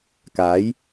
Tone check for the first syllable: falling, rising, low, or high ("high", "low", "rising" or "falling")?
rising